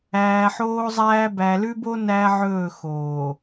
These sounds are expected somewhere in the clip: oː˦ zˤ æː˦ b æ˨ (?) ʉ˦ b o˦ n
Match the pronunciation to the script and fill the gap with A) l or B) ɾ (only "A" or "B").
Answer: A